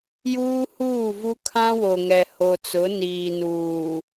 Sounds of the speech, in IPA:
j uː˦ h uː˦˨ v u˦ kʰ ã˦ w o˨ ŋ ɛ˨ h o˨ t͡s ʊ˨˦ n iː˨ n uː˨

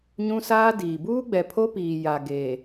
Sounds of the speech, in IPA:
ɲ ũ˦ s aː˦ d iː˨ b uː˦ ɡ͡b ɛ˨ pʰ o˦ p iː˨ j a˨ ɡ e˨

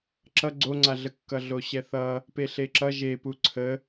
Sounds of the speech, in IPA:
ǁ ʌ ɡ͡ǀ o ŋ͡ǀ a ɮ ə kː ʌ ɮ o ɕ ɛ θ ʌ | p e ɬ e ǁ ʌ ʒ e p u ǀʰ ə

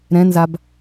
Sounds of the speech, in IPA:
ɾ ɛ̃ n z a b

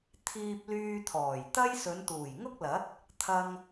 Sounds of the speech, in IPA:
t̪ʰ iː˧ p̚ l yː˧ t̪ʰ ɔː˨˩ j t̪ ɐ˥ j s ɵ˨˧ n t̪ uː˨˩ j ŋ ʊ˥ k̚ l ɐ˨˥ t̚ | t̪ʰ ɐ˧ ŋ

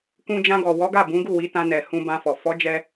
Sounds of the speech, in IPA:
k ũ˧ d͡ʒ ã˧ ɡ ɔ˨ w ɔ˨˦ ɡ a˦˨ b ũ˨˦ ɡ u˦˨ w i˨˦ t ã˧ n ɛ˨ h ũ˧ b ã˧ f ɔ˨ f ɔ˨˦ d͡ʒ ɛ˧

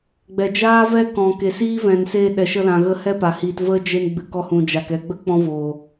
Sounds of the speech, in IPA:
ɡ͡b ɛ˨ d͡ʒ aː˦ v ɛ˦ k ɔ̃˨ k e˨ s iː˦ v ɛ̃˨ n s e˧ ɗ ɛ˨ ʃ ə˧ l ã˨ ɣ ə˧ h ɛ˦ p a˨ h iː˧ t v ə˦ d͡ʒ e˧ n ɡ͡b ɨ˨ k ɔ˧ h ũ˨ d͡ʒ a˨ k ɛ˧ ɡ͡b ə˦ k͡p ɔ̃˦ v oː˨

